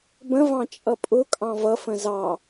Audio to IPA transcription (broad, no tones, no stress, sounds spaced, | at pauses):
b ə̃ v ɑ̃ t͡ʃʼ ʌ pʼ ʊ kʼ ɑ̃ v ʌ f ə̃ z ɑ